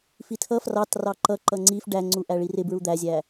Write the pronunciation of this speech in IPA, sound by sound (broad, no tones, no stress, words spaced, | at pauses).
fitʰʌ frɑtrɑ ǃʌǃʌ ŋ͡ǀif ɖæŋ͡ǀu ʔæɭirɪbɹu d̪æzʲæ